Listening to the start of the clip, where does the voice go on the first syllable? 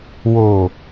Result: low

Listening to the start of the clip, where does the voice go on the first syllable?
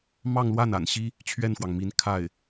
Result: falling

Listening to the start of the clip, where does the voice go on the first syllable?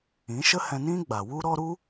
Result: rising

